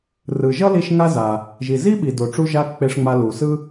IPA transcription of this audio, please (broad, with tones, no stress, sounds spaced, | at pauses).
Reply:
r ɯ˩ ʒ ʌ˥ l i˧ ʃ ŋ a˥ z a˩ | ʒ i˩ z i˥ ɓ i˩ d o˩ ʈ͡ʂ u˧ ʒ a˧ k͡p e˧ ʂ ŋ͡m a˧ l u˩ s ɯ˥